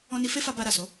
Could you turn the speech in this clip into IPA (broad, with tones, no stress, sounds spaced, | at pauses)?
ɔ̃˧ n i˧ f e˦ f a˧ b a˧ ɾ a˨ s o˨˦